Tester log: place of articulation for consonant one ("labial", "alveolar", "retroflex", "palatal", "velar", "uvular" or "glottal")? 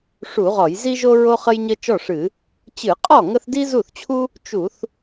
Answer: retroflex